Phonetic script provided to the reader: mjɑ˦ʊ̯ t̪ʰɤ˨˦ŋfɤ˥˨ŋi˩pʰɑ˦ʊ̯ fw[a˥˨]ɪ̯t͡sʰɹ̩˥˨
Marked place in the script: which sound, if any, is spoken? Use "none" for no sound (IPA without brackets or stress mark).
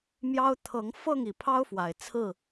a˨˩